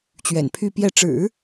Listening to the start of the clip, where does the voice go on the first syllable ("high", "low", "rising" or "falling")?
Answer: low